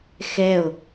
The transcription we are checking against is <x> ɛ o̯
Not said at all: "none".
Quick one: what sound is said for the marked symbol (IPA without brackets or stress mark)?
x